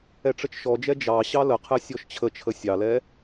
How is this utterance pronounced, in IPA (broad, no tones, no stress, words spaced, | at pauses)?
ɛʈ͡ʂət͡ʃʃɔd͡ʒɛ d͡ʒɑ ɕɑləqʰɛ sʲɔʃt͡ɕʰət͡ʃʰə sʲɑlɛ